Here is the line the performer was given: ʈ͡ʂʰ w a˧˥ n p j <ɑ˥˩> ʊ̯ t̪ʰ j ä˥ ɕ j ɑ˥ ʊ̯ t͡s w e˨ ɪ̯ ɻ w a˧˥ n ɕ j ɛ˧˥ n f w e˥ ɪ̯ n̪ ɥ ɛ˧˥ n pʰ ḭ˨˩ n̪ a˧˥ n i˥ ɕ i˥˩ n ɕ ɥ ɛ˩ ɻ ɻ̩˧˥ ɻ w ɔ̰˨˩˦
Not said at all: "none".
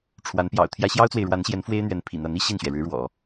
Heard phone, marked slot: ɑ̰˨˩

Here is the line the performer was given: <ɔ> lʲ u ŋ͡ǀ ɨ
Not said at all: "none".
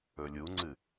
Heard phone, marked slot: ɵ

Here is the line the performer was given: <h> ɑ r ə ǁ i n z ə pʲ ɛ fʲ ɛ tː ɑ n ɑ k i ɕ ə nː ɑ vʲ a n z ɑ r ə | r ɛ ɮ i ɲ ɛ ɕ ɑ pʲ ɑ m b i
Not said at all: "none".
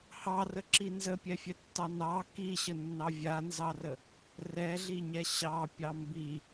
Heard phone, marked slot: h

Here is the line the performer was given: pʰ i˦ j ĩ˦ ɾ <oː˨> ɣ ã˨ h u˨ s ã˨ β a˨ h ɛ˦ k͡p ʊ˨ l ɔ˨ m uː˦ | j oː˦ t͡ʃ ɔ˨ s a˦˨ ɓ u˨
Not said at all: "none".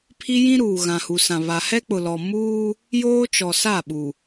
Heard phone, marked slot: uː˨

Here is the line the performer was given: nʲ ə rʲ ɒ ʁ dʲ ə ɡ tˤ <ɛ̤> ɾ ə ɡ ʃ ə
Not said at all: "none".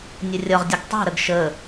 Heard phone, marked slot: ɛ̤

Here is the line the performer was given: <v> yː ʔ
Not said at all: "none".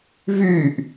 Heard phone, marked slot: v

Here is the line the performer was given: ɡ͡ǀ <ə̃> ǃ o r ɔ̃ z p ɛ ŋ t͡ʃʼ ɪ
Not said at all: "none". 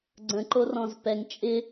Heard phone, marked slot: ə̃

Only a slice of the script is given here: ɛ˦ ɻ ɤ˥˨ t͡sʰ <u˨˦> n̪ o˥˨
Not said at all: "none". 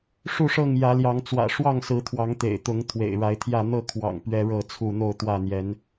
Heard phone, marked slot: u˥˨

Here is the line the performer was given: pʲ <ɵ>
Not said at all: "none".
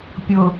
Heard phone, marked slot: ʊ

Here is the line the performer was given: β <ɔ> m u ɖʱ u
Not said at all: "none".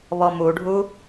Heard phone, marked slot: ɔ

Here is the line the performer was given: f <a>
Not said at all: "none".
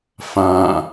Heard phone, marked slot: ã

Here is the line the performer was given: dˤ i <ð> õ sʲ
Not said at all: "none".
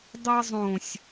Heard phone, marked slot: zˤ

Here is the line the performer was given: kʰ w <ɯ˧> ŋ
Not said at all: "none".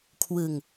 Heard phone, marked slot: ɯ˧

